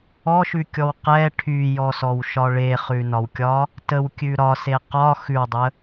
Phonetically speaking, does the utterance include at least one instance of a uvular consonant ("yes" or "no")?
yes